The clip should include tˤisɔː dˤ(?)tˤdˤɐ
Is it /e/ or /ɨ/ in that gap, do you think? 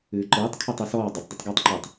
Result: ɨ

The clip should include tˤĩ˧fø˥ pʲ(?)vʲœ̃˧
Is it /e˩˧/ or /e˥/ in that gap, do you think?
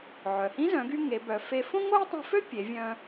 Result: e˩˧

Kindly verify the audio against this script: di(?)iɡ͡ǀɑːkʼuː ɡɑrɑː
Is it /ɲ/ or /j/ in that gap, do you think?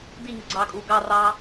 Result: ɲ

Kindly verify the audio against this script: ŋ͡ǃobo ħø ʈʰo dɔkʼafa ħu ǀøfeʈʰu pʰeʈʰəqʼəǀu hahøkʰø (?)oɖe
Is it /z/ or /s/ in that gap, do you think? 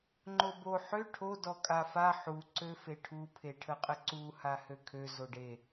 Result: z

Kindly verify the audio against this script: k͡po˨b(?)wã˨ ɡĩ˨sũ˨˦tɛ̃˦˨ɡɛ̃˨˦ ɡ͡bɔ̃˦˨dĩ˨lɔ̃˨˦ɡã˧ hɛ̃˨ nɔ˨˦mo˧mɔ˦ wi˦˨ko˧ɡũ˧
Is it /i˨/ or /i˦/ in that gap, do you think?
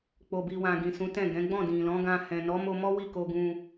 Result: i˨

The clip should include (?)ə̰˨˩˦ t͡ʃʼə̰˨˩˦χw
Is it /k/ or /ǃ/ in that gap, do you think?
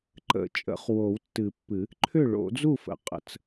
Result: ǃ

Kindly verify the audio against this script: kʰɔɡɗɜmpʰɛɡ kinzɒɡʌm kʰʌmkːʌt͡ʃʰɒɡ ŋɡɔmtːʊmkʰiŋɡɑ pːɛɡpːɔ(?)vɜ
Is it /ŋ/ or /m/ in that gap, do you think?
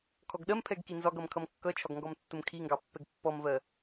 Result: m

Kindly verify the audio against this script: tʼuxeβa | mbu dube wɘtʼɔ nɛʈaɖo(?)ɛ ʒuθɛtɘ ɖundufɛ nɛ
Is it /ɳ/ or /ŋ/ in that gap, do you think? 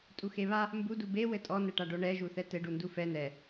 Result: ɳ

